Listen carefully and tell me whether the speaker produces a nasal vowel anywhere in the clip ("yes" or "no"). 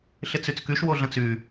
yes